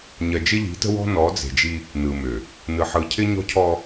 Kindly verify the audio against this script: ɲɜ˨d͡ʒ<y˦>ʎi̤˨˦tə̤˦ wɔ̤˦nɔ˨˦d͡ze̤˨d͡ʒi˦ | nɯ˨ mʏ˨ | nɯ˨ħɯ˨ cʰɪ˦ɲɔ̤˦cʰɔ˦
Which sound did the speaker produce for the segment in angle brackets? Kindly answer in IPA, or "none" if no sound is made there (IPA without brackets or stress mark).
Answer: ɪ˦